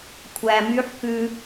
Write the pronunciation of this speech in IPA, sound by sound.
kʷʰ æ m y ħ k ʉ

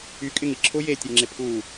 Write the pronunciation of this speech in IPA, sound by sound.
y kʼ ɪ ŋ i ǁʰ ʊ j e tʲ e ŋ͡ǁ ɪ pʰ u

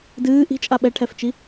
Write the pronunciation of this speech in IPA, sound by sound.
d ɨː ʔ i̤ t͡ʃʼ a ɓ ɛ ʈʰ ɛ f t͡ʃ i

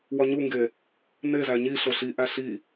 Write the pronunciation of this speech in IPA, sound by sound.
w ɒ ɲ u ŋ ɡ e | n e z æ ɲ i ɬ o ɬ i ʔ æ ɬ i

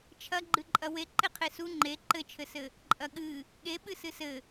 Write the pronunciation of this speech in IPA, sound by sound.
t͡ʃʰ ɐ ɡ͡ǃ ɨ ǃʼ ɐ w e ǃ e qʰ e s u ŋ͡ǃ e ǃ ɘ t͡ʃʰ ɘ s ɘ | ǃʼ ɐ ɠ ɨ | ɠ e ɓ ɨ s ɨ s ɘ

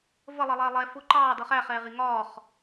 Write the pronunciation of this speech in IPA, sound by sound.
v ə lˠ ʌ lˠ ɛː lˠ ɛ f ʊ ǃ ɑː d ʌ χ æ χ ɛː ʁ i ŋ ɒː χ

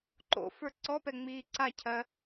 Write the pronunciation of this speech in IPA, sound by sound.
ǃ o̰ f ə˞ ǀ ɔ p ɛ ŋ͡m iː ǀ a cʰ ɜ

